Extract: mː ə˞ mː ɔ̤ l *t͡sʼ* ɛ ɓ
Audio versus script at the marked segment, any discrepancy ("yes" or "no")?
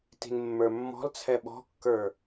yes